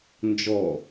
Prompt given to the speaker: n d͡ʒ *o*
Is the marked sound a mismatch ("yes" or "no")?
yes